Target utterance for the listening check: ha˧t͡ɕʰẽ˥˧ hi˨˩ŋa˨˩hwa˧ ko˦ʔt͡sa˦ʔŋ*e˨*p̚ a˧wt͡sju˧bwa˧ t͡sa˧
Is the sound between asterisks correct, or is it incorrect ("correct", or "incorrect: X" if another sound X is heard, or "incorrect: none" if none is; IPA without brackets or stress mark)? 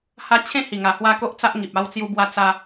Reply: incorrect: i˨